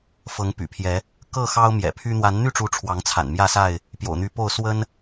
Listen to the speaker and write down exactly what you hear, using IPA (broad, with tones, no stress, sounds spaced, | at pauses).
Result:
f ɤ˨˦ ŋ p y̰˨˩ pʰ j ɛ˨˦ | k ɤ˥˨ x ɑ˦ ʊ̯ m j ɛ̰˨˩ pʰ y˦ n̪ w a˨˦ n n̪ y˥˨ ʈ͡ʂ u˨˦ ʈ͡ʂʰ w ɑ˨˦ ŋ t͡sʰ a̰˨˩ n m j ä˥˨ s a˥˨ ɪ̯ | p j o̰˨˩ ʊ̯ n̪ y˨˦ p o˥˨ ʊ̯ s w ə˦ n